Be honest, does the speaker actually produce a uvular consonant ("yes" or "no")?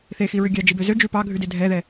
no